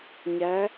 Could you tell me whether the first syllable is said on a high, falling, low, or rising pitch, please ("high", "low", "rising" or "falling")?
rising